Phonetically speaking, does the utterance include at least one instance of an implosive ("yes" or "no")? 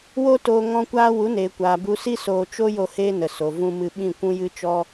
yes